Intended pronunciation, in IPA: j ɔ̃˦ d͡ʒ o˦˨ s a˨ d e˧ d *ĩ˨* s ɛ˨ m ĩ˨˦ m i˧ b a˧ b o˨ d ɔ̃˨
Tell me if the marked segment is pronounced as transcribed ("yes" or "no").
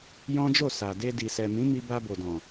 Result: no